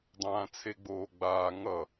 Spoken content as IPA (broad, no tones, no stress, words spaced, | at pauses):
dˤãːt͡sʰeɡ͡boːɡ͡baː ŋʌ